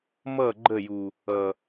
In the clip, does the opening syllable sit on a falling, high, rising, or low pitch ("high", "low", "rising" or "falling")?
falling